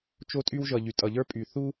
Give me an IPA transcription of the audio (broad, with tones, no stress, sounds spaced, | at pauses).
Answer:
t͡ʃ o˥ tʼ y˥ w ʒ ʌ˧ ʎ y˧ tʼ ʌ˧ ʎ ə˞˥ pʼ y˧ θ u˥